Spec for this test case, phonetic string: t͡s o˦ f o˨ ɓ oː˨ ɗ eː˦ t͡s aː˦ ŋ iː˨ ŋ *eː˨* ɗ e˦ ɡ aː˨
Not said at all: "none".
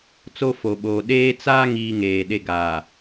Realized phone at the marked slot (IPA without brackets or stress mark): eː˨